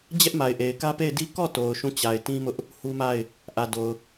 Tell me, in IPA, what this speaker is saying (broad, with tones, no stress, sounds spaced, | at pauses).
d͡ʑ ɛ˦ ʔ m a˨ ɪ̯ ʔ e˨ ɪ̯ k ä˦ p e˦˨ ɪ̯ d i˦ k ɔ˦˨ t o˨ ʊ̯ ʃ ũ˦˨ t͡ɕ a˨ ɪ̯ t ĩ˦ m ʊ˦ ʔ | h u˦ m a˦˨ ɪ̯ | ʔ ä˨ d o˨ ʊ̯